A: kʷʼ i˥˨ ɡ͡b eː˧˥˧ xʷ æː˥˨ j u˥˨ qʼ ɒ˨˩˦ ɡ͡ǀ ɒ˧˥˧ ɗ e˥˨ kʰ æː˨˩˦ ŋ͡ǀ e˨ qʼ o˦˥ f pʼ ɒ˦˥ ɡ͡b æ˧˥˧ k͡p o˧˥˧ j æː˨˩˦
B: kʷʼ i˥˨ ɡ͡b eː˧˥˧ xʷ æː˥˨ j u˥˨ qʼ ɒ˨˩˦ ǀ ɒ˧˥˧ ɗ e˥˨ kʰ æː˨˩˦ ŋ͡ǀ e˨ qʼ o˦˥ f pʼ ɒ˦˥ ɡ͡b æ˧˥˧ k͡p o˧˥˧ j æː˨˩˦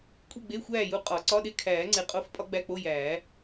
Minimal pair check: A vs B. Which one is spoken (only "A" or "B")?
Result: B